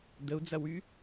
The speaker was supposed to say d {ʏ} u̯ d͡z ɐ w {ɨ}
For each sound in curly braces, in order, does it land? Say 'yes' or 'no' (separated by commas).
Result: no, no